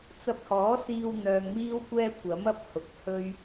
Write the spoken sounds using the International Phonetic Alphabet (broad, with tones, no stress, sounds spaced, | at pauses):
t͡s ɐ˧ p̚ h ɔː˨˥ s iː˧ w n̪ œː˧ ŋ m iː˥ w kʷ ɛː˥ kʷ ɐ˨˥ m ɐ˧ p̚ h ʊ˨ k̚ h ɵ˥ ɥ